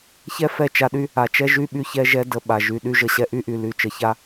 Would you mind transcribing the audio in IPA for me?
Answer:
ç ɛ˦ f ɛ˦˨ t͡ʃ a˧ ɗ y˧ | a˨ t͡ʃ ɛ˦ ʒ y˦ ɓ y˧ ç ɛ˧ ʒ ɛ˧ d ə˧ ɓ a˨ ʒ y˨ ɗ y˧ ʒ ə˨ ɕ ɛ˧ ʔ y˦ ʔ y˨ l y˧ t͡ʃ ə˨ ç a˦

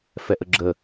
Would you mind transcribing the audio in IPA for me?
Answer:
f ɛ ʔ ə ɡ͡ǁ ə

